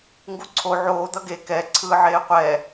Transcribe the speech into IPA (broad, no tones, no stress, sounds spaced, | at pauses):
ŋ ɡ u ǀʰ o ʕ oː d̪ ʌ ɡ e k ɛ ǀʰ ɯː ʕ eː qʷ ɛ